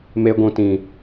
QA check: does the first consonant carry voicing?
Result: yes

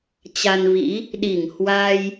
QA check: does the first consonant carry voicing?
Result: no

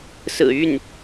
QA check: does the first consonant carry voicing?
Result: no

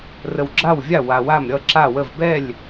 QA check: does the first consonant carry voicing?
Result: yes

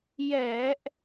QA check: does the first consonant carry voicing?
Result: yes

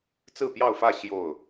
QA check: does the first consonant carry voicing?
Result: no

